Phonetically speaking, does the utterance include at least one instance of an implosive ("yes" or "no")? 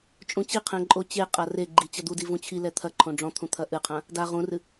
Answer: no